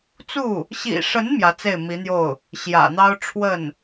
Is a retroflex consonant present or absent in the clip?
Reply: present